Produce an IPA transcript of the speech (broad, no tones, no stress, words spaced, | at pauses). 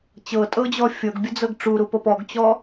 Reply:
t͡ɕɤtʼɤd͡ʑɔ fʲɤɡbʲəd͡zɤɡ ʈ͡ʂuɾupɤp ɔɡt͡ɕɔ